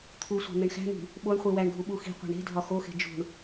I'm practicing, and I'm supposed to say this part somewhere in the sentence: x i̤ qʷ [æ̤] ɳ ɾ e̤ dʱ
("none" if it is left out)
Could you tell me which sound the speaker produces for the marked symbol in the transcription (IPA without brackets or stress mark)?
æ̤